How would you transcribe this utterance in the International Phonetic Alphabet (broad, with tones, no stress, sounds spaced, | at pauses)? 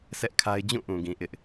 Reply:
s ɛ˦ ʔ kʰ a˦ ɪ̯ d͡ʑ ũ˦˨ ʔ ũ˨ ɡ ĩ˨ ʔ ɪ˦ ʔ